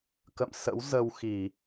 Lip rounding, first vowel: unrounded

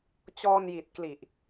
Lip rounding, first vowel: rounded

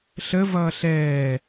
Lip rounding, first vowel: unrounded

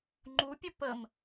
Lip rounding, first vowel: rounded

